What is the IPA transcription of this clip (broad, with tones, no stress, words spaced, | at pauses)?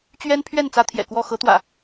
t͡ɕɥɛ˦npʰɥɛ˥˨n t͡sä˦t̪ʰjɛ̰˨˩kwɔ˥˨ xɤ˨˦t̪wä̰˨˩